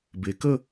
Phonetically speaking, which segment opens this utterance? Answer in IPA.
b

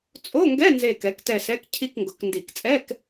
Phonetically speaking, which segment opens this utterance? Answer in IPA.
t͡sʼ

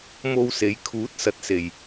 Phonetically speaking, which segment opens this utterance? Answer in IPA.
m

